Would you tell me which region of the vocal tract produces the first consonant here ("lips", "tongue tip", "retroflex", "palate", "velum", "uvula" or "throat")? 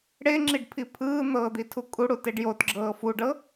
retroflex